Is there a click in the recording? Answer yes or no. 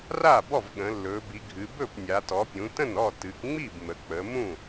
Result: no